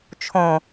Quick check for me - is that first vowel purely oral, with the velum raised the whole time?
no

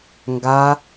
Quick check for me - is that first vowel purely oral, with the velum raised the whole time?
yes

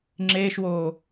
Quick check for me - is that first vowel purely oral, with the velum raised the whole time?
yes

